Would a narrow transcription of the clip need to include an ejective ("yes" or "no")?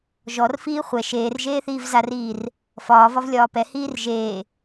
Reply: no